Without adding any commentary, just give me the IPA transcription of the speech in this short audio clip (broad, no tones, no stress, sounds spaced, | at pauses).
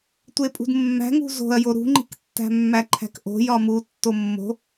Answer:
tʷ e pʼ ṳ d mː æ̤ ŋ ṳ z o̤ ɐ̯ j o ɾ ṳ ŋ͡ǃ i̤ k tː æ̤ mː æ ǃʰ æ̤ k ʔ o̤ j ɒ m u tː o mː o̤